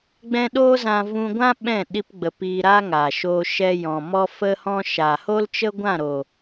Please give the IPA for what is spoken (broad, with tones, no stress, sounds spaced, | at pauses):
ɡ͡b ɛ̃˦ ɗ oː˦ z ã˧ v ũ˧ ɡʷ ã˦ ɓ ɛ̃˦˨ ɗ i˧ p ɡ͡b ə˨ p iː˧ ɾ aː˦ ŋ aː˨ ʃ oː˧ ʃ ɛ˧ j ɔ̃˨ m ɔ˦ f ə˦ h ɔ̃˦ ʃ aː˨ h o˦ l t͡ʃ ə˦ ɡʷ ã˦˨ ɾ o˨